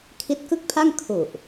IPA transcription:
kʰ i˦˥ t̚ k ɯ˥˩ k̚ pʰ a˥˩ ŋ kʰ u˨˩ ʔ

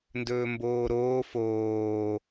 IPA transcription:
n d ɵː m b oː ɾ oː f oː

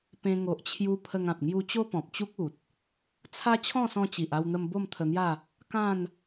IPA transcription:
p ẽ˧ ŋ o˨ ʔ t͡ɕʰ j u˧ pʰ ə˧ ŋ ã˨ p̚ ŋ j u˧ t͡ɕ o˦ p ɔ̃˨ p̚ t͡ɕ u˦ k̚ u˨ t̚ | t͡sʰ a˦ t͡ɕʰ ɔ̃˥˧ s ɔ̃˧ t͡ɕ i˨ ʔ a˧ w n̪ ə˧ m b o˥˧ m t̪ʰ ə˧ n̪ j a˥˧ | k ã˥˧ n

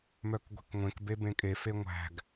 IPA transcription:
m œ k ɡʷ e̤ k ŋʷ ẽ k b e b ẽ kʼ e f e ŋʷ æ̤ ɡ

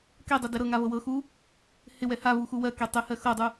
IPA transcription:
k ɛ dˤ ɘ d ɛ ɾ ɤ ŋ a v ɤ w ɤ x u | h ɪ w ɛ h a v u x u w ɜ k ɛ tˤ ɘ h ɜ x ɤ dˤ u

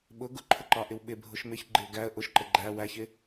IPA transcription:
ɓ ʊ ɡ ʊ ǃʰ ʊ ǃ ɑ ʔ ɪ w ɓ ɪ bʱ ʊ ʃ m ɪ ç ɡ͡ǃ ɪ ʊ̯ ɡ æ ə̯ ʔ ʊ ʃ ǃ ə ɡ͡ǃ æ w æ ç ɪ

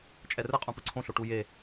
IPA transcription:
t͡ʃʼ ɛ r ɯ qʼ ũ p ɯ ǀʰ õ ɬ o ʈ u j e

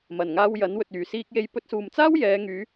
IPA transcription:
m ɐ˨˩ n ŋ aː˧ w j ɐ˨˥ n w ɵ˨ t̚ yː˨˩ s iː˧ k̚ j e˧ j p ɵ˧ t̚ s uː˨ m t͡s aː˥ w j ɛː˨˧ ŋ yː˨˧

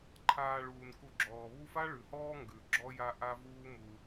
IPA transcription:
ǃʰ aː˨ ɭ uː˩ n k u˨ ɡ͡ǁ ɔː˩ β u˦ f a˥ ɭ ʉ˩ h ɔː˥ ŋ ɡ ʉ˩ ɡ͡ǁ ɔ˦ j a˦ ʔ a˦ v uː˦ m u˨

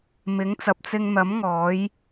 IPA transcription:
m ɪ˨˥ ŋ t͡s ɐ˨ p̚ t͡s ɪ˧ ŋ n̪ ɐ˨˥ m ŋ ɔː˨˥ j

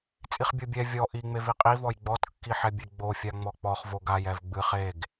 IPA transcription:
t͡sʼ i χ bʲ o bʲ ɛ vʲ ɔ ʔ i ŋ͡m e v i qʼ i v ɔ j ɡ͡b ɔ t kː i ħ ɛ bʲ e ɡ͡b o fʲ a ŋ͡m ɔ k͡p ɔ χ v o ɡ a j ɛ v ɡ͡b ɨ χ e ɡ

